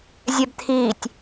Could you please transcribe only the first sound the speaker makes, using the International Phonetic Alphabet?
zʲ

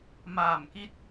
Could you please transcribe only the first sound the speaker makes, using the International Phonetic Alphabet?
m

